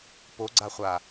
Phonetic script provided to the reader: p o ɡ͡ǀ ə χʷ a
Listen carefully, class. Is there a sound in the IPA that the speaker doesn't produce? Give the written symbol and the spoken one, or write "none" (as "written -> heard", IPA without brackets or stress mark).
ə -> a